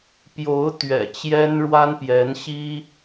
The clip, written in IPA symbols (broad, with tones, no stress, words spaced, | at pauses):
pjo˧˥ʊ̯ t̪ɥɛ̰˨˩t͡ɕjɛ˥nɻwa˥n pjɛ˧˥nɕi˥